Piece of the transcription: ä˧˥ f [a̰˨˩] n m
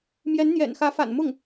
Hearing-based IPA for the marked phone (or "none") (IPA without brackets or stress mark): a̰˨˩